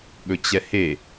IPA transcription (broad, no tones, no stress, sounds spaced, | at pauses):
ɠ ɵ t͡ɕ ɛ h e